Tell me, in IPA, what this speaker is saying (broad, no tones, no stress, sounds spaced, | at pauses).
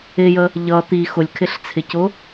ɪ j ə | ʎ ʌ t̪ i x ʊ lʲ kʰ ɪ ɬ t͡sʰ ɪ c ʊ